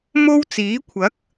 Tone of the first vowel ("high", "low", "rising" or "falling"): high